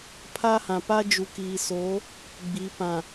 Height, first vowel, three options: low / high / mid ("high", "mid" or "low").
low